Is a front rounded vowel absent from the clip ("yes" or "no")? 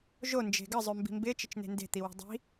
no